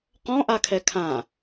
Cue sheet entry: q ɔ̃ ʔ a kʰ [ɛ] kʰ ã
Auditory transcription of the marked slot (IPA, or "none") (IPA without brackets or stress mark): ɛ